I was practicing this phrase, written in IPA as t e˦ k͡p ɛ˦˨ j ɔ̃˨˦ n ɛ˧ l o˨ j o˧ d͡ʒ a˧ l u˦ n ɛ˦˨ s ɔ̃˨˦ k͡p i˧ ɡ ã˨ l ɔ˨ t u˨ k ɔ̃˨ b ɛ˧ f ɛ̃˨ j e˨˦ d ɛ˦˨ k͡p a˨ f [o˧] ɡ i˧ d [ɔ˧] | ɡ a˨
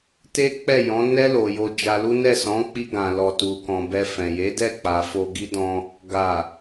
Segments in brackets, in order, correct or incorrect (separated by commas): correct, incorrect